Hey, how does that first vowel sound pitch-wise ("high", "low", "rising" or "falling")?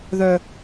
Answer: high